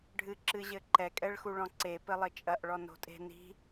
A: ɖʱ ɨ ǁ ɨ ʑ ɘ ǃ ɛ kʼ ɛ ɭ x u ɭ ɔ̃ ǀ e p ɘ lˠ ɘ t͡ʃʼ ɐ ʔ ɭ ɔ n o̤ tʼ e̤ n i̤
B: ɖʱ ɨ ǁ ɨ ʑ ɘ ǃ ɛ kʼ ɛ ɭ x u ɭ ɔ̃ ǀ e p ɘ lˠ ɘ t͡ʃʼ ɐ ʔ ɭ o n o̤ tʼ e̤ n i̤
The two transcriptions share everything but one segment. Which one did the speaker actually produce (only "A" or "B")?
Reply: A